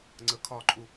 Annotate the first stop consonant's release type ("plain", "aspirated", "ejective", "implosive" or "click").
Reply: click